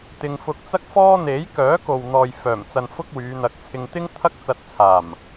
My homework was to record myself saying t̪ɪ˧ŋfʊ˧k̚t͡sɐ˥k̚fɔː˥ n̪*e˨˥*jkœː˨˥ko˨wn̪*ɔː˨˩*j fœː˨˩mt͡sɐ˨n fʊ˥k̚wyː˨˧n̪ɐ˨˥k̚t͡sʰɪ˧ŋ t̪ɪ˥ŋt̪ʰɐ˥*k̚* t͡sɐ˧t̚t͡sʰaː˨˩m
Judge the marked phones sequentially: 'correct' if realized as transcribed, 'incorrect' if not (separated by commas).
correct, incorrect, correct